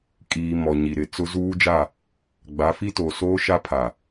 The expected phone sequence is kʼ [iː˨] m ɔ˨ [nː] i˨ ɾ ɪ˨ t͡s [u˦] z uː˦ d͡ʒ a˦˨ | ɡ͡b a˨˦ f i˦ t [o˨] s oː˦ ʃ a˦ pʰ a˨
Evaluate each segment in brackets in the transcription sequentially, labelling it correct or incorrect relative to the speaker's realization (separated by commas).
correct, incorrect, incorrect, correct